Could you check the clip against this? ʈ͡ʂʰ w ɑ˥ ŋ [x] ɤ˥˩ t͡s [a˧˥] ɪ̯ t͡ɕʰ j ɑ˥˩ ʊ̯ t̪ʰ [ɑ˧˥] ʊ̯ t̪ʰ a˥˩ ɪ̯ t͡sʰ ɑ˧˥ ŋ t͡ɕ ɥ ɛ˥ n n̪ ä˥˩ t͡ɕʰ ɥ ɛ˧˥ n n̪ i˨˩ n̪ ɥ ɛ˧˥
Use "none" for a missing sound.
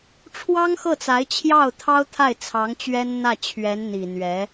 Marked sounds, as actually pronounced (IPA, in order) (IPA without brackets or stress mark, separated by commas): x, a˧˥, ɑ˥